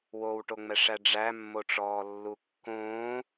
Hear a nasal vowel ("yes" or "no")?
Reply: yes